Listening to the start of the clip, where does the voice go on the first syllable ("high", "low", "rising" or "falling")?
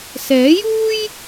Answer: rising